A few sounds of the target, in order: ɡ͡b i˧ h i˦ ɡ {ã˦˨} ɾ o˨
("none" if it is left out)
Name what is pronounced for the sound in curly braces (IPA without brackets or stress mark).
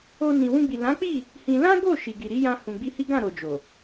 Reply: ã˦˨